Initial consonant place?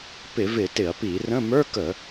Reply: labial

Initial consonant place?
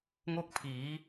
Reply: velar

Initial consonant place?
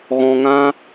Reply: velar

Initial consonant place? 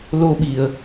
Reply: alveolar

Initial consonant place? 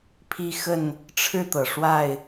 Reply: labial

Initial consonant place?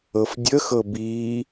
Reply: labial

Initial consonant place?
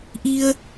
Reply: glottal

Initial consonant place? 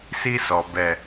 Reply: alveolar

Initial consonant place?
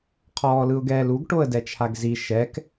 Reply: uvular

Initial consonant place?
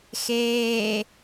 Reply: velar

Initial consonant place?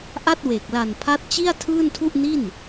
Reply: glottal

